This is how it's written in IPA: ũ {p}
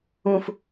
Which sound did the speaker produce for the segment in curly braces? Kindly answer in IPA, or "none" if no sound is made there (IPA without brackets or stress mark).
f